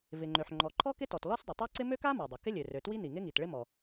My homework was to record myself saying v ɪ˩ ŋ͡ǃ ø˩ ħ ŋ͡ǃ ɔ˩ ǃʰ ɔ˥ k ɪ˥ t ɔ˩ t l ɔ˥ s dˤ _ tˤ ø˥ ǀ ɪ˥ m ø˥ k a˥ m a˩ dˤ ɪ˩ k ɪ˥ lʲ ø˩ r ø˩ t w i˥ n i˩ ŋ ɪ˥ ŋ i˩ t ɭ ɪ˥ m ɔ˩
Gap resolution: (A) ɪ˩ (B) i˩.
A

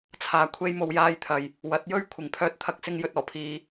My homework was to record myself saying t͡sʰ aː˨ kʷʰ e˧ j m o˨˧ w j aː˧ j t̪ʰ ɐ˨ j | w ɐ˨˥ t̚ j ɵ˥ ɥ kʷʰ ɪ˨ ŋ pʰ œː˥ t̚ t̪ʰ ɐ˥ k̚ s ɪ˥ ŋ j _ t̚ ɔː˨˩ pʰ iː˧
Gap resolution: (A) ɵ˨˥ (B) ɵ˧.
B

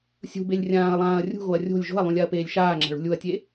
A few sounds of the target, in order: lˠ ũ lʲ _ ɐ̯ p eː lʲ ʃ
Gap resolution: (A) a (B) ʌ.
A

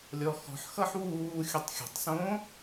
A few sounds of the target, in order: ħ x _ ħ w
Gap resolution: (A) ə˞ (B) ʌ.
B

